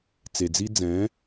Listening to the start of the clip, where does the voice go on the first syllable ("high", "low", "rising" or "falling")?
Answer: low